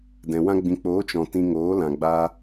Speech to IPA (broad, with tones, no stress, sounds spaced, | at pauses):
d ɛ̃˨ w ã˦ ɡ͡b ĩ˨ k͡p oː˨˦ t͡ʃ ɔ̃˨ t ĩ˧ ŋ oː˨˦ l ã˨ ɡ͡b a˧